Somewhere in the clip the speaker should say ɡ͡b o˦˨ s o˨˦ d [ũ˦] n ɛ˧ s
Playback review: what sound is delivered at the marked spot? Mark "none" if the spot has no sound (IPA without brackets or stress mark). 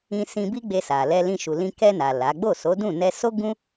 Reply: ũ˦˨